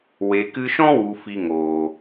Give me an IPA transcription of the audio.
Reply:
w e˨ k ɨ˧ ʃ ɔ̃˦ w u˨ f i˧ ŋ oː˨

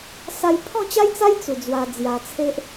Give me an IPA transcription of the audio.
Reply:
s a˧ j pʰ ɔ̃˥˧ t͡ɕ a˦ j t͡s a˦ j t͡s u˨˩ d͡z w a˧ d͡z j a˧ t͡sʰ e˦ ʔ

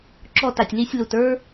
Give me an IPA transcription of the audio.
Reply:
ǁ ɔ˧ t a˨ tʲ l i˧ sʲ l u˨ t ə˞˦

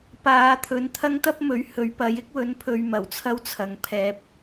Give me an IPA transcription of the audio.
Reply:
p aː˨˧ t̪ʰ ɵ˨˧ n t̪ʰ ɐ˥ ŋ t̪ ɐ˥ p̚ m ɵ˨˥ ɥ h ɵ˨˥ ɥ p ɐ˨˥ j ɪ˥ k̚ w ɵ˨˥ n pʰ ɵ˨˧ ɥ m ɐ˨˩ w t͡sʰ ɐ˥ w t͡sʰ ɐ˨ ŋ pʰ ɛː˧ p̚

